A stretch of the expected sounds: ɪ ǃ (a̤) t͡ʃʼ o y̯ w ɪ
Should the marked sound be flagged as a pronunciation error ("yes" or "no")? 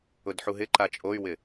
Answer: yes